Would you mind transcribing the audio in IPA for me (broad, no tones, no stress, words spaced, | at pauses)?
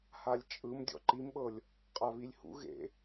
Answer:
halʲt͡ʃʼɯm dʲɔ̰ǃimɓɤlʲ | qʼaβilʲhṵ ɣḛ